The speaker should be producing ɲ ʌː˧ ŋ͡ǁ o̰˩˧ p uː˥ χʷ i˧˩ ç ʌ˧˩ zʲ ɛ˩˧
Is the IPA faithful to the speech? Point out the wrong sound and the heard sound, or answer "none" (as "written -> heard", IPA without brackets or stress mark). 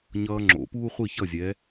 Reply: none